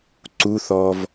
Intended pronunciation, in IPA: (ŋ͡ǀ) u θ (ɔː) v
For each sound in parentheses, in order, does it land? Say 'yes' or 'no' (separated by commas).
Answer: no, yes